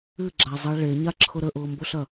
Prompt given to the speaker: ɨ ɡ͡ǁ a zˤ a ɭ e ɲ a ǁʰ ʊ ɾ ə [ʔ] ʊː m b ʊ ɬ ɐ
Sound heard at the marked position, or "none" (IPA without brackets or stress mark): ʔ